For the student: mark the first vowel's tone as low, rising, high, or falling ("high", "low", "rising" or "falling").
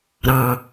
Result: low